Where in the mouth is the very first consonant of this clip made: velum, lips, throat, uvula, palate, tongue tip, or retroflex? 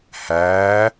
throat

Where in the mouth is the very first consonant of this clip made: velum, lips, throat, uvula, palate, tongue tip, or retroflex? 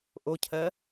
throat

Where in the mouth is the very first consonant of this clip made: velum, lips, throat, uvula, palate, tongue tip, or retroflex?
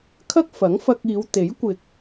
velum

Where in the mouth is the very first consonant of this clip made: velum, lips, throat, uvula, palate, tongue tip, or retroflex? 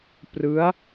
lips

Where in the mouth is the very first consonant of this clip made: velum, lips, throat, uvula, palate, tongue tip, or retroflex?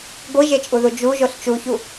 velum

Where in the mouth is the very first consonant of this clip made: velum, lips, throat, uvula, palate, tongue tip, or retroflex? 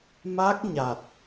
lips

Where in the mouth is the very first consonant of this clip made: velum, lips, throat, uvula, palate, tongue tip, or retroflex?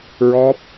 tongue tip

